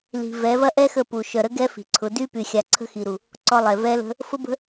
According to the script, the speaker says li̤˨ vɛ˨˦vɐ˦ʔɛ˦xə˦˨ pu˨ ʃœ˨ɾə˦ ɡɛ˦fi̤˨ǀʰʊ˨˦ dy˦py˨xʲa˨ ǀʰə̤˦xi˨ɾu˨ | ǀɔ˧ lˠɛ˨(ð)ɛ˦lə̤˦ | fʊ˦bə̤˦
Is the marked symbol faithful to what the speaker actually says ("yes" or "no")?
no